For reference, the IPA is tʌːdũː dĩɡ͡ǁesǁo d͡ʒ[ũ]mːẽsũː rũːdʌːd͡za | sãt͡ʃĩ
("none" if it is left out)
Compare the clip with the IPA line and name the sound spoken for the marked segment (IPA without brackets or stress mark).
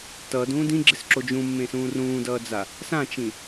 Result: ũ